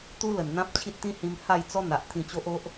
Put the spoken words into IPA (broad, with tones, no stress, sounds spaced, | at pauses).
t̪ u˦ l ə˨˩ n n̪ ã˦ p̚ t͡ɕʰ i˦ t̚ t̪ ĩ˦ h ĩ˧ m h a˥˧ j t͡s ɔ˦ n̪ a˨ ʔ t̪ʰ ĩ˧ t͡ɕ o˦ ʔ o˦ ʔ